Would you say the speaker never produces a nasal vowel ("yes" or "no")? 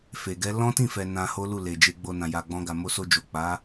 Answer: no